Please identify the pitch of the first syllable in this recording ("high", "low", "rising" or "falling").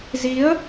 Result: rising